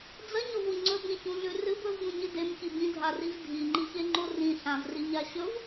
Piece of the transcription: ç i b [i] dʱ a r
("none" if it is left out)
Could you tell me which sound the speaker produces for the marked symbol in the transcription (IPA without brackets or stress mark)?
ĩ